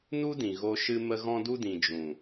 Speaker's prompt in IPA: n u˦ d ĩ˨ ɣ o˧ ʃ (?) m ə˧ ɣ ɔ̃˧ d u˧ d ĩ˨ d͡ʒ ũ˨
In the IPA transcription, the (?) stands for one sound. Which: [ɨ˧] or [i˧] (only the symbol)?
ɨ˧